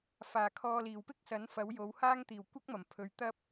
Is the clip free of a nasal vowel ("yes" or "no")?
yes